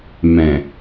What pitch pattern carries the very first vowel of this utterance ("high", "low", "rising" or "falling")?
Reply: low